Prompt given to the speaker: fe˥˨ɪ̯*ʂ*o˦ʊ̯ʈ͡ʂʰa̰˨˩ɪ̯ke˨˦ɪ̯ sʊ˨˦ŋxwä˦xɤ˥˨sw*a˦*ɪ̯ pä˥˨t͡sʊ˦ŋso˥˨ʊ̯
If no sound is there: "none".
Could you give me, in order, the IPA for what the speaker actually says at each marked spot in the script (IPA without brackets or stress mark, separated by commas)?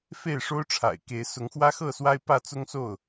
ʂ, a˦